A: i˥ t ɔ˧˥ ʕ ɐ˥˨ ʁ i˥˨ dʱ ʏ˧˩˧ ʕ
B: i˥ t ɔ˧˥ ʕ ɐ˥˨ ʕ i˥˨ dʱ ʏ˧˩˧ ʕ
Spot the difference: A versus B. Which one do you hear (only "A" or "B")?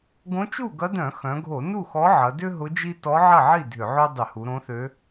B